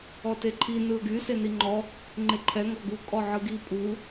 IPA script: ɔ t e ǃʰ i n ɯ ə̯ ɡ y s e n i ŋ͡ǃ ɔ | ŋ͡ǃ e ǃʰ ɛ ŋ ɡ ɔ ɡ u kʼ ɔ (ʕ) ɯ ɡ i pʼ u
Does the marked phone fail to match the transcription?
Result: no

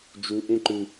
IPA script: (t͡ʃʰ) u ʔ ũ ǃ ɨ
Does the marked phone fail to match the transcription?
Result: yes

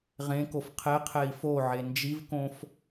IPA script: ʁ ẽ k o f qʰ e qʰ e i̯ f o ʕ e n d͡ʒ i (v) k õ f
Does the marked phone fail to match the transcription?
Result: no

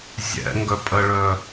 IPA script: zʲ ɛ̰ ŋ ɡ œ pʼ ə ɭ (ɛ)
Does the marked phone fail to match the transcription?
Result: yes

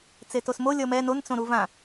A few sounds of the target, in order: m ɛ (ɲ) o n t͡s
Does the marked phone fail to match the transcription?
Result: yes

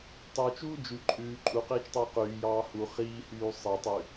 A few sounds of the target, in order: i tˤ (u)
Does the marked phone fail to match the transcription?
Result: yes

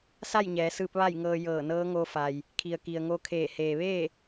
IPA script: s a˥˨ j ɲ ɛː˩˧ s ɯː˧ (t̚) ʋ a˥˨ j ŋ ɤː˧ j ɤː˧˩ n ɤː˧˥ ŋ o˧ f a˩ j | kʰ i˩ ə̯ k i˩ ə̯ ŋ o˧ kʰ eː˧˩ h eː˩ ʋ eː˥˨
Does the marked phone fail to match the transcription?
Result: yes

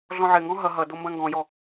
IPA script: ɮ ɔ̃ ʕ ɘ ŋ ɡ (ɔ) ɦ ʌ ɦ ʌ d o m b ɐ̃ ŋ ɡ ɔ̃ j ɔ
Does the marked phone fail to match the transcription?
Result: yes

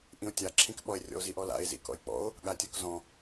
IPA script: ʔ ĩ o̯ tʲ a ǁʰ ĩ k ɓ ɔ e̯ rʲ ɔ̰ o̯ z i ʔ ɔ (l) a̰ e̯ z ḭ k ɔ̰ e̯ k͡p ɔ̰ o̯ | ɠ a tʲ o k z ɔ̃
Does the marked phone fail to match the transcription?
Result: no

